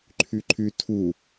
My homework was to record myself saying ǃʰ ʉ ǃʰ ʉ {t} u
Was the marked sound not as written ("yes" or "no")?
yes